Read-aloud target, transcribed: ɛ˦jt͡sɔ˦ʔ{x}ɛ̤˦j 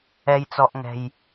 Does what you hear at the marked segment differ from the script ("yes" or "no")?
yes